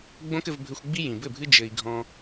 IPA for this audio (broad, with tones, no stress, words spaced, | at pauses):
ɡ͡bõ˦kɘ˧vbʱɘ˧xʷɡ͡bi˦ jĩ˨bɘ˦˨bʱɨ˦ d͡ʒɘ˧i̯ ɡʱɔ̃˧